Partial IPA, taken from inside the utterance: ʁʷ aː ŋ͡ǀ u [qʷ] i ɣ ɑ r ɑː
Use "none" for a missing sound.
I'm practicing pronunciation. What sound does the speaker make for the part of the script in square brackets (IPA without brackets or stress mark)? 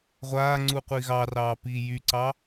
qʷ